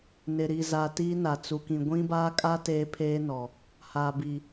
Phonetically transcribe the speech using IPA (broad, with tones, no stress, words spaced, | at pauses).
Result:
nɪ˨ɾi˨za˨ tiː˦na˨t͡su˨kĩ˨ ɡʷĩ˦baː˦kʼa˦ teː˦pʰeː˦nɔ˨ | haː˨bi˨